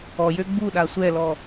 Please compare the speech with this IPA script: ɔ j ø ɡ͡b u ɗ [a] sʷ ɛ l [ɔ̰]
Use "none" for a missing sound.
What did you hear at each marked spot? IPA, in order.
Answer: a, ɔ

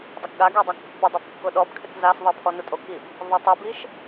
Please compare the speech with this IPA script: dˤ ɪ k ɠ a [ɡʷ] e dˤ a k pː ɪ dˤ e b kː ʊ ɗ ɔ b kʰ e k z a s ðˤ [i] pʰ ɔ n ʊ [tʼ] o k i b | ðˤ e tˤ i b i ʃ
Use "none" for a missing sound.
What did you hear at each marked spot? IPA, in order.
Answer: ɡ, i, tʼ

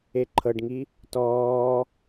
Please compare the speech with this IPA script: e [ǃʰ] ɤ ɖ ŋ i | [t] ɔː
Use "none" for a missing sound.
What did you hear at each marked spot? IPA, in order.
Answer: ǃʰ, t

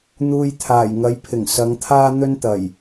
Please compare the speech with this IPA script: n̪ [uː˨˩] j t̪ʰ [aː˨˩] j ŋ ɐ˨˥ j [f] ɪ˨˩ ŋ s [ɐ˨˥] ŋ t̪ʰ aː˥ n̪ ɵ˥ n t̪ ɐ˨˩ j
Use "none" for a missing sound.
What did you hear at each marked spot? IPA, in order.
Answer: uː˧, aː˨˩, pʰ, ɐ˨˧

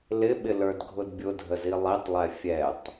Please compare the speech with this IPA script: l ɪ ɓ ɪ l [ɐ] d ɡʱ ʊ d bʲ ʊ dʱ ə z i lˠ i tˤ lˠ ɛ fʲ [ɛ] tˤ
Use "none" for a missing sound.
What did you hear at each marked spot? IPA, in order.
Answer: ə˞, ɛ

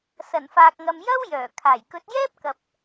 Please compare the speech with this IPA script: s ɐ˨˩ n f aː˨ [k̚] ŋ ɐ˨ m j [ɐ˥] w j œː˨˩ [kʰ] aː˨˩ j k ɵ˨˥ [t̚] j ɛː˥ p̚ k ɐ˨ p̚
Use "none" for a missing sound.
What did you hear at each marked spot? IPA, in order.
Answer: k̚, ɐ˥, kʰ, t̚

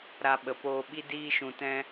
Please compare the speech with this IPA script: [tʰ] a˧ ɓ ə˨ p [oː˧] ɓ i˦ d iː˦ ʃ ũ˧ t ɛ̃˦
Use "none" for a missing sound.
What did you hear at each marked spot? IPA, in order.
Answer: ɾ, oː˧

